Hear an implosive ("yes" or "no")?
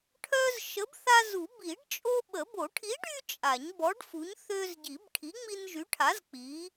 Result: yes